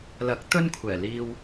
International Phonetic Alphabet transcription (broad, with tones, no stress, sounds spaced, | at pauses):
l ɐ˨˥ k̚ t̪ ɵ˥ n kʷʰ ɛː˨˩ l iː˧ w